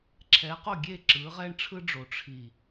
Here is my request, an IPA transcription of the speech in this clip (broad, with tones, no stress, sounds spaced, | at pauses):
ǁʰ ɛ˨˦ q o˦˨ ɡʲ e˦˨ ǁ ɯ˨˦ ʁ ɛ˦ ɳ ʈ͡ʂʰ ɯ˦ ɖ͡ʐ o˨ ʈ͡ʂʰ i˨